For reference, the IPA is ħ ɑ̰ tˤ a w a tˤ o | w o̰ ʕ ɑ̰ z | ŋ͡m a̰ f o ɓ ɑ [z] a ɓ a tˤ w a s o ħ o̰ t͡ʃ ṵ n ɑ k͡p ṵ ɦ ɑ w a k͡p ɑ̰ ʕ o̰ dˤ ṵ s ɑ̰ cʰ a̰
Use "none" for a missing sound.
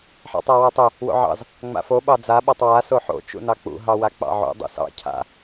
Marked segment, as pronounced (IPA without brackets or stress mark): d͡z